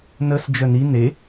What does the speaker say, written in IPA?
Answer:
nəs d͡ʒœni ne

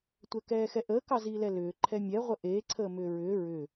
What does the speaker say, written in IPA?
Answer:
tʷɛkɛːxɛʔəː kɑziːlɛlʏː ǃʰɛmʲɛ ʁʷəʔeː ǀʰəːmʏːɹʏː ɹʏ

